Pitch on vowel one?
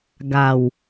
low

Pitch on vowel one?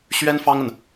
high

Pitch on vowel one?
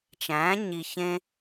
rising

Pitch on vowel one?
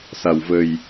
low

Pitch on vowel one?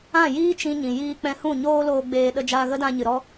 falling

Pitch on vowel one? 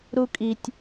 high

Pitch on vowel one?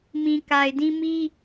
low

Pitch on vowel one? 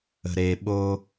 low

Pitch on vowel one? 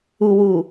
low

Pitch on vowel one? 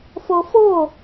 high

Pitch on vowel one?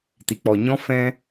low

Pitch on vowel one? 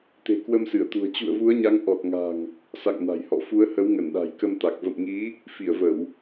low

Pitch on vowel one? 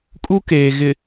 high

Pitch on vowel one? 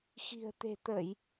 low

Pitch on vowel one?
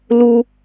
high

